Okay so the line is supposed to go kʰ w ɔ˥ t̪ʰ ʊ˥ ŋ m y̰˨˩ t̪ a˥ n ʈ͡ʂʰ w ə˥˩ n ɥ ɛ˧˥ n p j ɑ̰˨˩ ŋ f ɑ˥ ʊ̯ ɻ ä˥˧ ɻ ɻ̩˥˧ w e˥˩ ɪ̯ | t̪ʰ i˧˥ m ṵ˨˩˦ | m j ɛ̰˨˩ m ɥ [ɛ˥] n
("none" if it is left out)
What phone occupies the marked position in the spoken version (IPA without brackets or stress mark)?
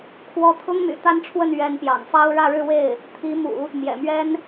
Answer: ɛ˥